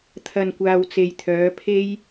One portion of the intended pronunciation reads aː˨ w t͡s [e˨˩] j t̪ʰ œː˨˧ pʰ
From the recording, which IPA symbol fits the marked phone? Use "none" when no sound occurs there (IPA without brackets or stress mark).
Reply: e˨